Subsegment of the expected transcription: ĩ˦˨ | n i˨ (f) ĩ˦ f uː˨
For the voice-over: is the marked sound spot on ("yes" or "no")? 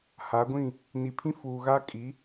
no